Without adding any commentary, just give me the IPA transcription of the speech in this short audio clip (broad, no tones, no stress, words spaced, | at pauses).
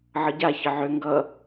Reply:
ʕʌɟa çəʕø ŋɡʌ